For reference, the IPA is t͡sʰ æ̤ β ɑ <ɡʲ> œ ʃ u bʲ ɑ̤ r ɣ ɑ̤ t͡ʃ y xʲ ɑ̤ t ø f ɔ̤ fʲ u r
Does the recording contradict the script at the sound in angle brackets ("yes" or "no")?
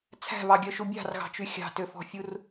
no